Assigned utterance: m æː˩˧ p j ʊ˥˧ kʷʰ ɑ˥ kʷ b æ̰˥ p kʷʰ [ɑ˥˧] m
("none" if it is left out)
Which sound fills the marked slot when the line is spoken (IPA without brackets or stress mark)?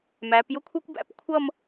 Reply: ʌ˥˧